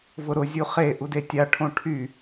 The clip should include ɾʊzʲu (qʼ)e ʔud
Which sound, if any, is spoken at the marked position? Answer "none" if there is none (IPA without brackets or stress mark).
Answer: χ